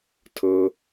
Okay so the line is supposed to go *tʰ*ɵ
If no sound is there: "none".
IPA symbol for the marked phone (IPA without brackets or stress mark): tʰ